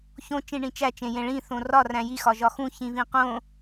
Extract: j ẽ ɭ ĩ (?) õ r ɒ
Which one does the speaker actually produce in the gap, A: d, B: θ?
B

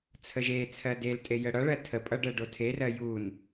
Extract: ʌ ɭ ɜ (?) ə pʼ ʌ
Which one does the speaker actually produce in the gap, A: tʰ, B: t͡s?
A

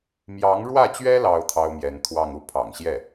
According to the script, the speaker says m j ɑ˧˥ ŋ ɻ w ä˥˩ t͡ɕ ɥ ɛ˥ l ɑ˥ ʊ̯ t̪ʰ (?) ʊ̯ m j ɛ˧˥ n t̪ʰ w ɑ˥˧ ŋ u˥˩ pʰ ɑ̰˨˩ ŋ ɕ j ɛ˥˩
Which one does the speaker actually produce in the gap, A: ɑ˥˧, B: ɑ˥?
B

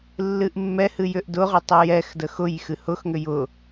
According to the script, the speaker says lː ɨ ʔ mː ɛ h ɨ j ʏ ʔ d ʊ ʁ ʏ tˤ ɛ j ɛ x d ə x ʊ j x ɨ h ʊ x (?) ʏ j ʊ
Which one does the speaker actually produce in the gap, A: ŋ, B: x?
A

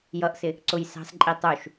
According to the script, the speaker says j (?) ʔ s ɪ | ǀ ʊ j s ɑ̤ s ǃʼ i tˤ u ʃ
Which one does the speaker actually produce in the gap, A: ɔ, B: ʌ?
B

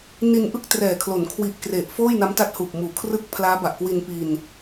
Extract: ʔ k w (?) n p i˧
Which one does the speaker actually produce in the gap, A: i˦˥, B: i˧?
B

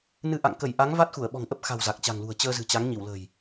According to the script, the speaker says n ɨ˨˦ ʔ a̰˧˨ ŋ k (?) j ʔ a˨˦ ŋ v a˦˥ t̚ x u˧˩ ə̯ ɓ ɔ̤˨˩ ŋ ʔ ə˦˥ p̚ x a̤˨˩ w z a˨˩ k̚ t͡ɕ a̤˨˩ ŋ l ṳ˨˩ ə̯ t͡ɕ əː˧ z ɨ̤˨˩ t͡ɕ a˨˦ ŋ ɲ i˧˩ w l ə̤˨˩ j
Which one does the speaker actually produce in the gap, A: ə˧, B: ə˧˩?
B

